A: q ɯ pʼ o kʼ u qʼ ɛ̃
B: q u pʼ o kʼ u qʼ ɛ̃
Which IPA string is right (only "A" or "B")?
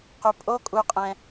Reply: B